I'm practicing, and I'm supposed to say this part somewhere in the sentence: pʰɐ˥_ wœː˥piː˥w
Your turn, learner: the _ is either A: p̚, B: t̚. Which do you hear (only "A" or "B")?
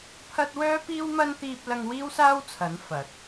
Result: B